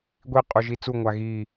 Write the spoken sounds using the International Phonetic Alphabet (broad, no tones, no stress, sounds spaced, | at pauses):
ɡʷ i qʼ u ʒ i t͡s u ŋʷ a ɣ iː